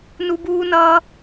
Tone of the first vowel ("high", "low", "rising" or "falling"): high